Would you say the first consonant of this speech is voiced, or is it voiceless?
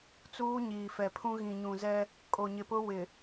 voiceless